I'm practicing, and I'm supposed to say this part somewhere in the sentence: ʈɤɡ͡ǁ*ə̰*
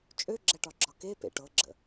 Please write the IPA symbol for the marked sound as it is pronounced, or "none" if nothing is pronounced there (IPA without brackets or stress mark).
ə̰